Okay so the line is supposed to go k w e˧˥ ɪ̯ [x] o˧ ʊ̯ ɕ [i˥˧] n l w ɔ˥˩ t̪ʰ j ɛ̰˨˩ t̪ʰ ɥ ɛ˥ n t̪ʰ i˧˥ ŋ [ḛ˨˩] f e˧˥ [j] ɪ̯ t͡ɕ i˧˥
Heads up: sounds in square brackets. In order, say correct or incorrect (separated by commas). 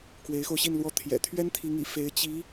correct, correct, incorrect, incorrect